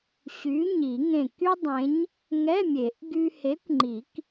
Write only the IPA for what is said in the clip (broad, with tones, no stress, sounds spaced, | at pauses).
ɕ y˨˥ ɲ i˨˩˦ ŋ ẽ˧˩ k y˥ dˤ ẽ˨˥ ɲ | ŋ ɛ˧˥˧ mʲ e˨˩˦ ʔ ɡ y˧ h e˨˥ kʷ ŋ͡ǃ i˨˩˦ k